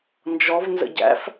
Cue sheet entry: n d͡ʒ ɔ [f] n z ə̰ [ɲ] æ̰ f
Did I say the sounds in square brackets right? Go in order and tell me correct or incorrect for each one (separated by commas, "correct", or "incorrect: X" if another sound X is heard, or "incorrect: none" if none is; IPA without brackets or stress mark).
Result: incorrect: v, incorrect: ɟ